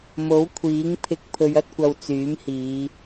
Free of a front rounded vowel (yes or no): no